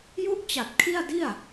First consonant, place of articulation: palatal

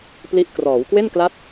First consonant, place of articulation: labial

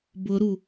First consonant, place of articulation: labial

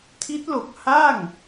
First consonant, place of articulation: alveolar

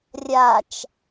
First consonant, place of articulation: alveolar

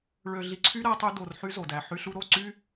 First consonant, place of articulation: retroflex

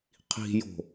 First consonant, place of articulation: uvular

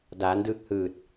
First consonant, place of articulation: alveolar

